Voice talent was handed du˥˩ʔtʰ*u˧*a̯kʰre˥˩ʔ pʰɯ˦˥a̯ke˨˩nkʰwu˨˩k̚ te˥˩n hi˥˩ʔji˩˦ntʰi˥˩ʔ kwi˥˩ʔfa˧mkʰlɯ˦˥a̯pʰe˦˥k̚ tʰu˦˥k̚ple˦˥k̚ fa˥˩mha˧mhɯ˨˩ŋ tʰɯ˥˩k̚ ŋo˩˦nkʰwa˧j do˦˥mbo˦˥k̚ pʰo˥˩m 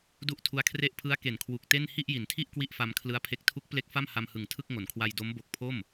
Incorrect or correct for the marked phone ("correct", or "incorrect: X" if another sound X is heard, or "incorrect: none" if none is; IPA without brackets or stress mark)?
incorrect: u˦˥